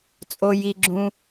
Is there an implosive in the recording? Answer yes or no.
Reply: no